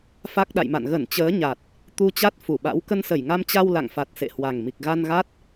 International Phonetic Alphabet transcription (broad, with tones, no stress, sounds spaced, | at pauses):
f a˦˥ k̚ ɗ a̰˧˨ j m a̰˧˨ n ɣ ə˧˩ n t͡ɕ əː˨˦ ɲ a˨˩ t̚ | t̪ u˧ t͡ɕ a˦˥ t̚ f u˧˩ ɓ a̰˧˥ w k ə˧ n s ə˧˩ j ŋ a˧ m t͡ɕ a˧ w l a̰˧˨ ŋ f a˨˩ t̚ s ḛ˧˨ h w a˨˩ ŋ m i˨˩ k̚ ɣ a˧ n ɣ a˦˥ t̚